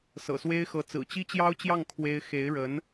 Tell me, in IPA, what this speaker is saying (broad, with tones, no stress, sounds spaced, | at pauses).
s ɤ̰˨˩ s w e˥ ɪ̯ x ɤ˧˥ t͡s ɹ̩˨˩ t͡ɕ i˥ t͡ɕ j ɑ˥ ʊ̯ t͡ɕ j ɑ˥˩ ŋ kʰ w e˥ ɪ̯ x e˧˥ ɪ̯ ɻ ə˧˥ n